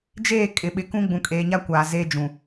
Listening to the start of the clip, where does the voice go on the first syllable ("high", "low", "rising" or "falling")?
falling